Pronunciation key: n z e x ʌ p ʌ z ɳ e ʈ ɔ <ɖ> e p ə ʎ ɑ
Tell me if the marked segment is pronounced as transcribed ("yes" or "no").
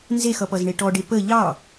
yes